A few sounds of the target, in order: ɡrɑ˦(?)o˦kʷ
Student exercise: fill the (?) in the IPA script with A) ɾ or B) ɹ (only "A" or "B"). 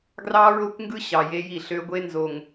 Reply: B